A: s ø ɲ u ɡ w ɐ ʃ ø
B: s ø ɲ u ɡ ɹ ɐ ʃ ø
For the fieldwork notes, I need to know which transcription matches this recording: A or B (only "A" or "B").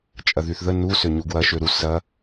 A